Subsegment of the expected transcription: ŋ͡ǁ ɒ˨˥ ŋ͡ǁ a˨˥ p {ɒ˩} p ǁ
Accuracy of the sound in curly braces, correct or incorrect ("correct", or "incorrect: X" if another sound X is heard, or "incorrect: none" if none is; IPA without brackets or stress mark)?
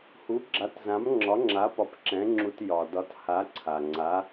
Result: incorrect: ɒ˨˥